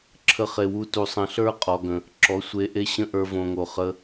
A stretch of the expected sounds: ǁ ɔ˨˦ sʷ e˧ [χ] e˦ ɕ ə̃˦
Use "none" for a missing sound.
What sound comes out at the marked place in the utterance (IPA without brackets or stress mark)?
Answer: ʔ